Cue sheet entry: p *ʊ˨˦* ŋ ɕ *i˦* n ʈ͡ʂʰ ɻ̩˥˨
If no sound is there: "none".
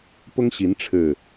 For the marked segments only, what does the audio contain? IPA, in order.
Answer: ʊ˦, i˨˦

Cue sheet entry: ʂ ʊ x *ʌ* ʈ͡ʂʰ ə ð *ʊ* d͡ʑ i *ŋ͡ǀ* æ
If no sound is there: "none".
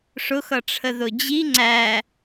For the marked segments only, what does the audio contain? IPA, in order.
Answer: ʌ, ʊ, ŋ͡ǀ

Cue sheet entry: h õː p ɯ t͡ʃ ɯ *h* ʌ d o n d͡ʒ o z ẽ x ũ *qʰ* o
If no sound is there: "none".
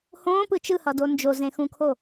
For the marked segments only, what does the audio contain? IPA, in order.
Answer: h, kʰ

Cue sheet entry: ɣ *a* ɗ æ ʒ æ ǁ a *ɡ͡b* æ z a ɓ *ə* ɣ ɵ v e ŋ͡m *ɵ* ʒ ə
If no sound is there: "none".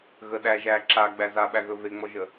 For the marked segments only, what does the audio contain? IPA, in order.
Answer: ə, ɡ͡b, æ, ɔ

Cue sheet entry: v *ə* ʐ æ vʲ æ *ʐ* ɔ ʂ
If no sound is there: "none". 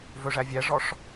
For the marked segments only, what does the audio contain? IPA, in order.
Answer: ɵ, ʐ

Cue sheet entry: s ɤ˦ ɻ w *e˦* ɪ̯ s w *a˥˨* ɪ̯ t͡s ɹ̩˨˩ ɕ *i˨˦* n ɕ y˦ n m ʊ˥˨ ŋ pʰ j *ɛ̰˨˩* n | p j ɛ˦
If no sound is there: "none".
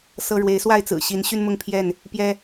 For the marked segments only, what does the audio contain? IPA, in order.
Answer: e˨˦, a˥˨, i˨˦, ɛ˥˨

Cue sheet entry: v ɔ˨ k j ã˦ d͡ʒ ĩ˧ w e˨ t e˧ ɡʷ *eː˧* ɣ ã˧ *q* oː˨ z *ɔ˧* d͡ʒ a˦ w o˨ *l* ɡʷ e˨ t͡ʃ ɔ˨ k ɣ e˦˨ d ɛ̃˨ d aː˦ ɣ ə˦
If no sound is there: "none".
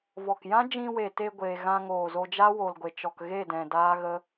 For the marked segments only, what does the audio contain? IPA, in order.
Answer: eː˧, ŋ, o˧, l

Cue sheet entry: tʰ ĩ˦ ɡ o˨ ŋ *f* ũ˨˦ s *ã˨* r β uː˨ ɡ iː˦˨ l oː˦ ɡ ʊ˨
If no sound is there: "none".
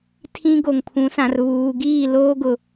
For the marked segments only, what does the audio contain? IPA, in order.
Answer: pʰ, ã˨

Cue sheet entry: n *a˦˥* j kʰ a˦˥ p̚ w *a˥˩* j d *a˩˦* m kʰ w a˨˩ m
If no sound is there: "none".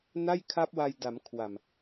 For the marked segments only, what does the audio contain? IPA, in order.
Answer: a˥˩, a˧, a˩˦

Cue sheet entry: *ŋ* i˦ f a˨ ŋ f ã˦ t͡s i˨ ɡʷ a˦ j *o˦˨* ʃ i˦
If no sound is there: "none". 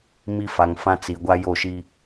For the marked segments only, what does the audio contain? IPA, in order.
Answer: m, o˦˨

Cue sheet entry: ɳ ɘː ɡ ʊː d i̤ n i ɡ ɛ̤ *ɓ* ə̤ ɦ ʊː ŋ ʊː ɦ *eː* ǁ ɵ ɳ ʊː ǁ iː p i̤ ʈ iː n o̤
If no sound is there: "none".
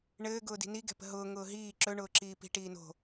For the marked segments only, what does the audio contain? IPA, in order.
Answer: p, iː

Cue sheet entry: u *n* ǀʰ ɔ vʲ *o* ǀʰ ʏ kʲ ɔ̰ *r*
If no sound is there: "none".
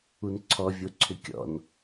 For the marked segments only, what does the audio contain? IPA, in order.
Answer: n, o, n

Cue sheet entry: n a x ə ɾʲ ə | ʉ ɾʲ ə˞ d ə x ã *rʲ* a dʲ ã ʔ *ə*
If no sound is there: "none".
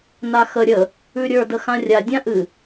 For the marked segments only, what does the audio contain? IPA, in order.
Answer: rʲ, ɨ

